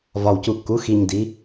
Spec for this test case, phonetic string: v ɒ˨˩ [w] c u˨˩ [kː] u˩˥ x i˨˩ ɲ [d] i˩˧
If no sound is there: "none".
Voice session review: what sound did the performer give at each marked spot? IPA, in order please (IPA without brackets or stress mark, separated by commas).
w, kː, d